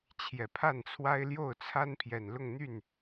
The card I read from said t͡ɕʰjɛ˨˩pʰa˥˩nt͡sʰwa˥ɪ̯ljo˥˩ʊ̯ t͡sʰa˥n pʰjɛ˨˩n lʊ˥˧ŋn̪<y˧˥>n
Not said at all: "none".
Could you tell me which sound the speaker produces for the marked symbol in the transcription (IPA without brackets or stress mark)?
y˥˩